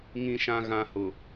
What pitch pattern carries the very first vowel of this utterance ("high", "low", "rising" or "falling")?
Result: low